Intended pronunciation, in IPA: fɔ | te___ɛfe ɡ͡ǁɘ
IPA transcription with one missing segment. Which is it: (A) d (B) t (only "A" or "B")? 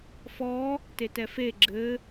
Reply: B